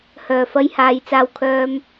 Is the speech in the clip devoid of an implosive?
yes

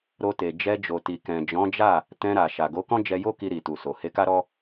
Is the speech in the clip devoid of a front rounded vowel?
yes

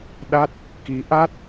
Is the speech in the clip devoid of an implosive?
no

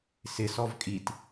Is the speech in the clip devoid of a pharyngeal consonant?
yes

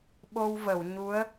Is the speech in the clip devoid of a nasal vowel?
yes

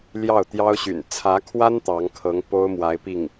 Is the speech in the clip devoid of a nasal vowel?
yes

